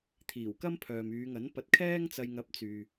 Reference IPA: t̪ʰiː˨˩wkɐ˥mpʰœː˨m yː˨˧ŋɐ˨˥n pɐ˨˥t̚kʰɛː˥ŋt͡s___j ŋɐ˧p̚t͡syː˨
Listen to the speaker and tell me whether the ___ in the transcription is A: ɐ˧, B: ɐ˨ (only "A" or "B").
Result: A